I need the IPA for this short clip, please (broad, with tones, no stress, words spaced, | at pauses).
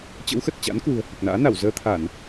t͡ɕə̰˧˥wxə˨˩t̚t͡ɕa̰˧˥n kwṳ˨˩ə̯hɨ˨˩k̚na̰ː˧˥na˧˩w zəː˧t̪ʰa˧˩˨n